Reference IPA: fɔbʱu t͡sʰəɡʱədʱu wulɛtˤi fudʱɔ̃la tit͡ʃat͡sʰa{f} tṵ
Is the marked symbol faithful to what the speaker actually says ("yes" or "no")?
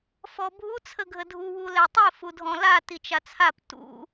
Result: no